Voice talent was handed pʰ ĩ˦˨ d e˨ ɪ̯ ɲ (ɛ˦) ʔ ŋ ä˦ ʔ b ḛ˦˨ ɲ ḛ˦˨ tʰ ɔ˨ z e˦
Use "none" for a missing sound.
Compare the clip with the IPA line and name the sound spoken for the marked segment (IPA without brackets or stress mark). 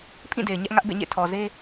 ɛ˦